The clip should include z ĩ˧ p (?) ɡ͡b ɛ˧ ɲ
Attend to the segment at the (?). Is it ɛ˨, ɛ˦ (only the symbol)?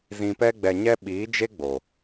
ɛ˦